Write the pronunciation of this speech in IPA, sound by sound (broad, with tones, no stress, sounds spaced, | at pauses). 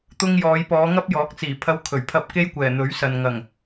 t̪ ʊ˧ ŋ j ɔː˨˧ j p ɔː˨˧ ŋ ɐ˥ p̚ j ɔː˨˥ k̚ t͡s iː˨˩ pʰ ɐ˧ w kʰ ɵ˨˩ ɥ pʰ ɐ˧ p̚ k e˥ j kʷ ɛː˨˩ n̪ ɵ˨˥ ɥ s ɐ˨ n ŋ ɐ˨˩ ŋ